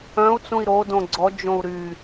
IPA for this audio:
œ̃ u̯ t͡s ũ i̯ ɾ o d õ ɡ͡ǀ ɔ d͡ʒ õ u̯ ɾ y

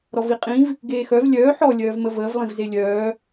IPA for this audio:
ɾ ɔ v i qʼ ĩ v | ɡ eː x œ v lʲ œː ħ ɔ lʲ œː v m ə v əː v lˠ ĩ v z e lʲ œː

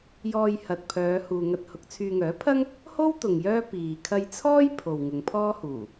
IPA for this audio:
j ɔː˨ j h ɐ˨ t̚ pʰ œː˨˧ h uː˨ ŋ ɐ˧ t̚ h ʊ˨˥ k̚ t͡sʰ yː˧ ŋ œː˨˥ pʰ ɐ˥ ŋ | h o˥ w t̪ ʊ˨ ŋ j œː˥ p iː˨ kʰ ɐ˧ j t͡sʰ ɔː˥ j pʰ o˨ w ŋ ʊ˨˧ ŋ pʰ ɔː˥ h uː˨˩

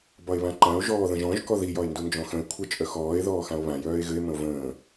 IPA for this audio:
b ɒ e̯ β ã ǃ ã o̯ ʒ ɔː ð ə̃ ʒ ɔ̃ ʒ k ɔ ð i j ɒ e̯ n d u n d͡ʒ ɔ̃ x ə̃ e̯ kʷʰ ə t͡ʃʼ œ x ɔː e̯ ð ɔː x ã o̯ β ã j œː e̯ ɣ ɘ e̯ m ə̃ o̯ v ə̃ː

